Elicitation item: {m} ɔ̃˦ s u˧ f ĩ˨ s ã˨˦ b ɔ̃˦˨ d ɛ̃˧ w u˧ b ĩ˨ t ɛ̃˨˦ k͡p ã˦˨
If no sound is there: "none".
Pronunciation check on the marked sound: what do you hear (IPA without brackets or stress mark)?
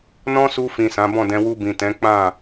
n